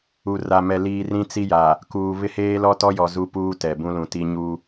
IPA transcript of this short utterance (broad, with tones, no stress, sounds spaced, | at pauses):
u˨ r a˨ m ɛ˨ l iː˨ r ĩ˦ t͡s i˦ j a˨ | k uː˨ β ɪ˦ h eː˦ l ɔ˦ t ɔ˦ j ɔ˨ z u˦ p uː˦ t ɛ˨ b ũ˦ l ũ˨ t i˦ ɲ u˦